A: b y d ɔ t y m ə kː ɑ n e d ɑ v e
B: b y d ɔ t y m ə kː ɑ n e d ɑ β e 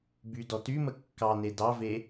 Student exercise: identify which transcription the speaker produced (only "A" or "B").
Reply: A